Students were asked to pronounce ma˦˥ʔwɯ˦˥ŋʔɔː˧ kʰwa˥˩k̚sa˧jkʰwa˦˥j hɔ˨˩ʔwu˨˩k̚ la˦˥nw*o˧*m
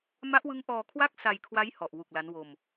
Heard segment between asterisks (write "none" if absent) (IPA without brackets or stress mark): o˧